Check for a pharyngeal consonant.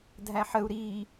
present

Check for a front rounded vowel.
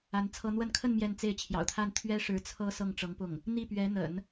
absent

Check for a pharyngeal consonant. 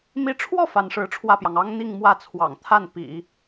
absent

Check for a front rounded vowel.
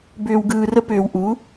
present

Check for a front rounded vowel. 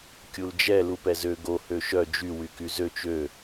present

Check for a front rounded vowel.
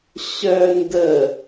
present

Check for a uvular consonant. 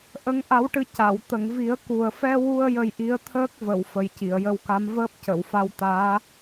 absent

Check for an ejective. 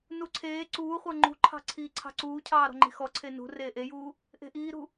absent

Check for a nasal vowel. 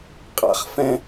present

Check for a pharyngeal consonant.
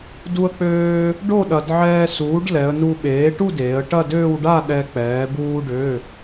present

